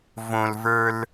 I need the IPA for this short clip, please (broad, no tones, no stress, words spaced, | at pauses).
võlvə˞l